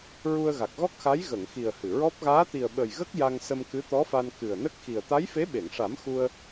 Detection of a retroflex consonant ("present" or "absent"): present